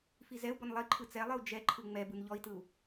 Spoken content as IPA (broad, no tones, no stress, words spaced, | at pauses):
fizɛu̯ bɔnlˠiǃʰɯ t͡sɛlˠɨu̯ d͡ʒɛǃʰɯ ŋ͡mɛbɯn ʎɔi̯tɯu̯